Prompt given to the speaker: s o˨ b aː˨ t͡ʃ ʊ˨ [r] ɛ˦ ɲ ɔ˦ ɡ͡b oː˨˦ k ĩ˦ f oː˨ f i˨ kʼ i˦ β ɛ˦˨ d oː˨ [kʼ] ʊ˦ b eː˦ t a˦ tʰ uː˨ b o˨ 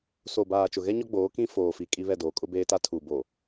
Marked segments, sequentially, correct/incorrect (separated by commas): incorrect, correct